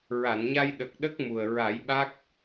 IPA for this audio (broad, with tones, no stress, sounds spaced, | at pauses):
ɹ a˨˩˨ n ɲ a˧ j ɗ ə˨˩ k̚ ɗ ə˦˥ k̚ m u˨˩ ə̯ ɹ a˨˩˦ j ɓ a˦˥ k̚